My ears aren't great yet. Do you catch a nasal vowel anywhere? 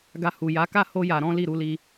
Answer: yes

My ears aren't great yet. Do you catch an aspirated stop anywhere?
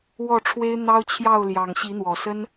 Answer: yes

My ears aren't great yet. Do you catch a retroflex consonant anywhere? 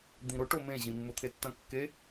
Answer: yes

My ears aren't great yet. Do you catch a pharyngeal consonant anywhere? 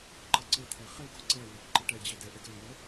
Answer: no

